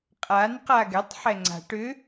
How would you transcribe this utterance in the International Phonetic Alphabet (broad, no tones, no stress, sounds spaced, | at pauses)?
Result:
qʼ a n q a ɡ ɛ tˤ ħ ɛ ŋ͡ǀ a̤ ʈ ʏ